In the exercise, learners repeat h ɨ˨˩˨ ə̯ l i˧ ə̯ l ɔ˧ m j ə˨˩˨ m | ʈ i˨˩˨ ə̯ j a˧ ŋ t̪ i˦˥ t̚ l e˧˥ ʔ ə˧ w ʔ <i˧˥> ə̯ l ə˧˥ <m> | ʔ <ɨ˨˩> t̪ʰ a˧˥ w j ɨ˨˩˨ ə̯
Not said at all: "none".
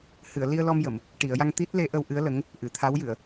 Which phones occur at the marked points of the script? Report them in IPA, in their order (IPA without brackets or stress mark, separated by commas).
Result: ɨ˧˥, ŋ, ɨ˨˩˨